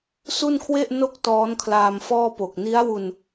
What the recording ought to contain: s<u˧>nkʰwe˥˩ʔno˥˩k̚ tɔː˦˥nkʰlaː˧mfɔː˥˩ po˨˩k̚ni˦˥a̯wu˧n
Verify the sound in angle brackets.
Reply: incorrect: u˥˩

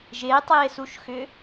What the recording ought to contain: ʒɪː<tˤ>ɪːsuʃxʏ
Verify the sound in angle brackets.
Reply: correct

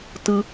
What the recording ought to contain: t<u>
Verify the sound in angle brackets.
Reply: incorrect: ɯ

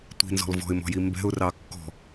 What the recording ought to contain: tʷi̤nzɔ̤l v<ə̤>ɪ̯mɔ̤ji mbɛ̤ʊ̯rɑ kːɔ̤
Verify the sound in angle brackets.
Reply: incorrect: ɔ̤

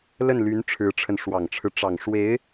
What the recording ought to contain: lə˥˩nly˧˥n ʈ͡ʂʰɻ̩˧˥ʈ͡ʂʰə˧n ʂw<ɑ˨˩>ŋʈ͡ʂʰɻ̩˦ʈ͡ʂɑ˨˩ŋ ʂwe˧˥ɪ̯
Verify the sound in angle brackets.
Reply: correct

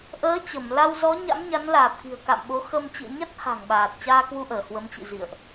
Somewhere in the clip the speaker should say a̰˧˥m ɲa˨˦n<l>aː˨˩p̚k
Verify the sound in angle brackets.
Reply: correct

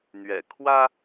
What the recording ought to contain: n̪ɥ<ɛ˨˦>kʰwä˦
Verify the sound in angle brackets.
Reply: incorrect: ɛ̰˨˩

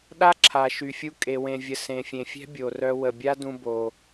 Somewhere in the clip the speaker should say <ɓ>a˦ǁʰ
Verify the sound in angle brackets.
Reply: incorrect: ɗ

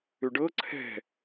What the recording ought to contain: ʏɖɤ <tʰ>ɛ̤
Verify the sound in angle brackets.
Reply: incorrect: ǀʰ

